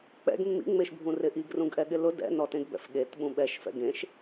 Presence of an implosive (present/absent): present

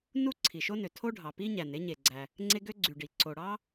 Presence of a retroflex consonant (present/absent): present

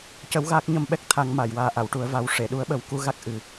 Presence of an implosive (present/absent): present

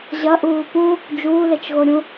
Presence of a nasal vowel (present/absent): present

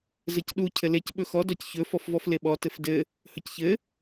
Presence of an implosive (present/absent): present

